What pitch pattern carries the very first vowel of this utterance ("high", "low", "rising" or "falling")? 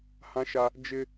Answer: high